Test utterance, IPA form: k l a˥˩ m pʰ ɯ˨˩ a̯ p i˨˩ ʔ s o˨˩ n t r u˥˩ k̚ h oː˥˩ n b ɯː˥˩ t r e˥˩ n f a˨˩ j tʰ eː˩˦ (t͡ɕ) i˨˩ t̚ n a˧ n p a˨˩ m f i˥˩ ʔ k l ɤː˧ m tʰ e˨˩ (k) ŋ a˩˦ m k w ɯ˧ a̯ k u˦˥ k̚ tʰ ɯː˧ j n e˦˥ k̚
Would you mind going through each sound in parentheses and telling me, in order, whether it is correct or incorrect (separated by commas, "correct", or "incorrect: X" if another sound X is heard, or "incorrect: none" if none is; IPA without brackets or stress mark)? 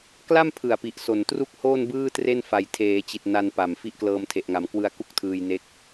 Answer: correct, incorrect: ʔ